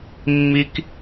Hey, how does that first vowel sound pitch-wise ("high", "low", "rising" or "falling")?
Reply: high